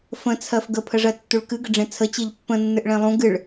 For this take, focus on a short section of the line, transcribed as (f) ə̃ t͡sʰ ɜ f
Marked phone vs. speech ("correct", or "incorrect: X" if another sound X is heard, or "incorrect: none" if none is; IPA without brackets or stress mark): correct